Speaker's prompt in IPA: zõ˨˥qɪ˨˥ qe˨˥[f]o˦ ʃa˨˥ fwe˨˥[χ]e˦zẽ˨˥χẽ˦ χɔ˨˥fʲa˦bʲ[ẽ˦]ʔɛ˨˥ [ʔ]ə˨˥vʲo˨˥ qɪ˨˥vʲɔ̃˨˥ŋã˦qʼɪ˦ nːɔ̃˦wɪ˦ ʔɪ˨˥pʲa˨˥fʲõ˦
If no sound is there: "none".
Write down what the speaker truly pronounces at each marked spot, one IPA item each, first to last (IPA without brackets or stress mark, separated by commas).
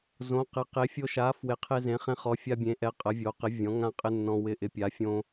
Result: fʲ, qʰ, ẽ˨˥, qʼ